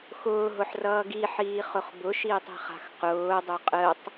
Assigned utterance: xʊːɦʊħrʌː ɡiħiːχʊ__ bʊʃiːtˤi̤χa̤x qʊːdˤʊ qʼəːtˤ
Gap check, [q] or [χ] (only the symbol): χ